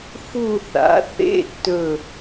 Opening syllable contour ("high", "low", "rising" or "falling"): falling